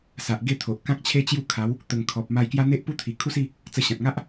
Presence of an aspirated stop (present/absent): present